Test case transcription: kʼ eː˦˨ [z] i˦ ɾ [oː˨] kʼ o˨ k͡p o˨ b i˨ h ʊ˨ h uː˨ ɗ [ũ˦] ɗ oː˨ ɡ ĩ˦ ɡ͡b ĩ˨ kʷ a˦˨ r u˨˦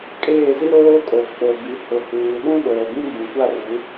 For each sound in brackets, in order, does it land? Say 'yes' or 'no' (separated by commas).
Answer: yes, no, yes